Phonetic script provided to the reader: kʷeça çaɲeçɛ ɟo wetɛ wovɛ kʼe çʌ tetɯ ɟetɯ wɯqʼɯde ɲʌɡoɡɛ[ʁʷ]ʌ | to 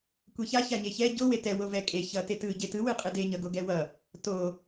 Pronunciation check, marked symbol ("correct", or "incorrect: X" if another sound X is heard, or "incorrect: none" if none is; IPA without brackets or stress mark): incorrect: w